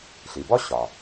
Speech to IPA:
ɬ i˩ b ɔ˥ ɕ ɒ˩

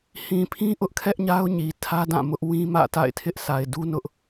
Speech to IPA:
h ĩ˨ pʰ ĩ˦ ʔ ʊ˦ ʔ kʰ ɛ˦ ʔ ɲ a˦ ʊ̯ ɲ i˨ tʰ ä˦ d ã˦˨ m ʊ˦ ʔ w ĩ˦ m ä̰˦˨ t a̰˦˨ ɪ̯ tʰ ɪ˦ ʔ s a˨ ɪ̯ d u˦ n ʊ˦ ʔ

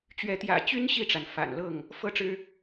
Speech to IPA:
t͡ɕ ɥ ɛ˨˦ t̪ j ä̰˨˩ t͡ɕ y˦ n ɕ i˥˨ ʈ͡ʂ a˩ n f a̰˨˩ n l ɤ˥˨ ŋ | f ɤ˦ ʈ͡ʂ ɻ̩˦

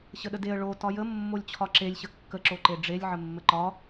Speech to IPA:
ɕ ə ɗ ə d e ə̯ ɭ o t ɒ j ə mː o lʲ t͡ɕʰ ɒ ǁ e lʲ ɕ ə kː ə ǁ o ǃ e ɖ͡ʐ e lʲ ʕ ə mː ə ǃ ɒ

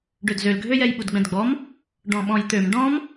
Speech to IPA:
ɖ ø d z ø l ɡʱ ø j ɛ j ɓ u d ɡ͡b ɛ̃ d ɡ͡b ɔ m | ɖ ɔ̃ ɓ ɔ̃ j t̪ ø m ɖ ɔ̃ m

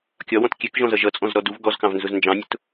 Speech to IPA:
kʲ ɒ w ɔ̃ t kʲ ɛ k ʒ ɔ̃ z ʌ ʒ ʌ t͡sʼ ɔ̃ z ɾ ɔ d u v ɡ ɔ z k ɑ̃ v n z ʊ z n d͡ʒ ɑ̃ nʲ ʊ t

